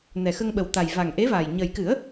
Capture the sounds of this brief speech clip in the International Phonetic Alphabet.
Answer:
n ɛ˨˩ x ə˧ ŋ ɓ ə˨˩ w t̪ a˨˩ j v a˨˩ ŋ ʔ e˧˥ v a˨˩ j ɲ ə˨˩ j k ɨ˨˩˦ ə̯

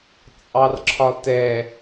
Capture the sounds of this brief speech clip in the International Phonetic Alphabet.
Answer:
t͡sʼ ɑ r ǁʰ ɒ t ɛ

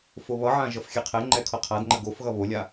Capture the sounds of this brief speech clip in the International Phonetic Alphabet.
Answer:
f o β ʌ ʕ ã ʒ ʌ f xʲ ɛ qʰ ɛ ŋ͡ǃ ɛ kʰ ʌ qʰ a d ŋ͡ǃ ə ɡ o f ɣ ʌ β o lʲ a

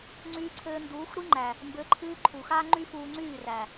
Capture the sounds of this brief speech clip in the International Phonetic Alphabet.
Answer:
ŋ͡ǀ yː˧ ǀʰ ɘː˧ n d uː˨˦ xʷ ɾ i˦ ŋ͡ǃ æ˨ | m b ɘ˨˦ ǃʰ ɨː˧ ǃʰ u˨ x a˦ ŋ͡ǃ y˦ f uː˧ ŋ͡ǀ yː˦˨ r æ˨

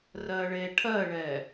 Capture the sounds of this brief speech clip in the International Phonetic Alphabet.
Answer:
r ɜ ɭ e ʈʰ ɜ ɭ ɛ

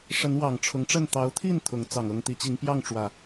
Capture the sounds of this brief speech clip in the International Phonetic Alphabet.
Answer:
ʂ ə˨˦ n w ɑ˨˩ ŋ ʈ͡ʂʰ ʊ˨˦ ŋ ʈ͡ʂ ə˥˨ n t̪ ɑ˨˦ ʊ̯ t̪ʰ i˥˨ n t̪ʰ ʊ˨˦ ŋ t͡s ɑ˨˩ ŋ ɤ˥˨ ŋ t̪ i˨˦ t͡ɕ i˨˦ ŋ p j ɑ˥˨ ŋ ʈ͡ʂ w ä˨˩

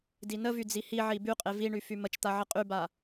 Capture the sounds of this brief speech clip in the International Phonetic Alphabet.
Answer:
d i n ə v y d͡z i h i ʕ i b y qʼ e v i ɳ y f y m ə t͡ʃ t̪ a ʕ ə qʼ y b a

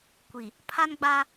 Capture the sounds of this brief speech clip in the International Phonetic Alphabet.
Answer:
kʷ i˨ | pʰ a˦ n ɡ͡b a˦

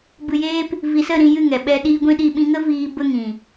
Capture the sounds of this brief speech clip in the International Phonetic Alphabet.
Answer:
b ɨ˨ j eː˧ p | v i˨ s ə˦˨ ɾ ĩ˧ j ɨ˦˨ ŋ ɛ˨ ɓ ɛ˧ ɗ iː˦ ɡʷ ĩ˦˨ ɗ i˦˨ ɓ ĩ˧ ŋ ə˦ v iː˦ b ə˦ ŋ ĩ˨

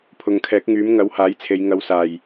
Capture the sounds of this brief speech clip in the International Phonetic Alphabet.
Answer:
pʰ ʊ˨ ŋ kʰ ɛː˨˥ k̚ ŋ yː˨˥ m ŋ ɐ˨˥ w h aː˨˥ j t͡sʰ e˨˧ j ŋ ɐ˨˧ w s aː˨˩ j

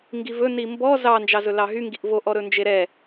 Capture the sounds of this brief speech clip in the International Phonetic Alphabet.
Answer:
ŋ ɡ i v ɵ n i m b ɔ z ɑ n d͡ʒ ɑ z ɵ l ɑ ɦ y ŋ ɡ i ʔ v o ʔ ɔ ɾ ɵ n d͡ʒ e ɾ ɛ

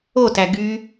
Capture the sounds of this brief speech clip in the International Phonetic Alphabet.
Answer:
o t æ ɡ y

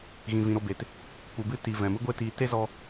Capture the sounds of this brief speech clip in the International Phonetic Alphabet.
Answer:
ɣ ĩ˨ v ĩ˨ ɾ o˦˨ b e˨ t | k͡p u˨ b ɨ˧ t i˨ v ɛ̃˨ m ɨ˦ ɡʷ e˦ t iː˧ t e˦ z ɔ˧

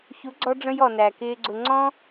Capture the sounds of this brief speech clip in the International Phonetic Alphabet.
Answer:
ç u˨˦ ɡ͡ǀ ɔ˧ ɖ͡ʐ ə̃˧ j ɔ˨ n æ˨ k ɪː˧ ɡ͡ǀ ʊ˧ ŋ͡ǀ ɔ̃˦

